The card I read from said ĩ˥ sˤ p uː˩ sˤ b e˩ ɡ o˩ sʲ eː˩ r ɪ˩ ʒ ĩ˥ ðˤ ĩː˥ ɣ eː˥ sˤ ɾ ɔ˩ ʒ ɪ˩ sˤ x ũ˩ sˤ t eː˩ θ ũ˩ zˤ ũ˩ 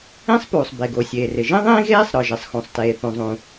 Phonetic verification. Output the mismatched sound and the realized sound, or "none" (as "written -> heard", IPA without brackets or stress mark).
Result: none